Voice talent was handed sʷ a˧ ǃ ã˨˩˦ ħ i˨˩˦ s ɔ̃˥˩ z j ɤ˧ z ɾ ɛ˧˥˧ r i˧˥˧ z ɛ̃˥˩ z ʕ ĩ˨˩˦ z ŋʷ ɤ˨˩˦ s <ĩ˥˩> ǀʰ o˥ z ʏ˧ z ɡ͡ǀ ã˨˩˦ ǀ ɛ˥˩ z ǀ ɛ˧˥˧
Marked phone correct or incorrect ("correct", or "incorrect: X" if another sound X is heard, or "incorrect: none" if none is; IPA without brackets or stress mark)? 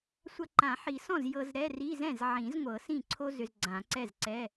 correct